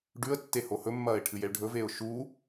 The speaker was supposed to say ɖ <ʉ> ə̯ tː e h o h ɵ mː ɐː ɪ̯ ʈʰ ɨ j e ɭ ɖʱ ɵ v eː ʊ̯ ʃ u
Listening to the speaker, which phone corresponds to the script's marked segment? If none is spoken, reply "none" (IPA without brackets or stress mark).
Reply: ʉ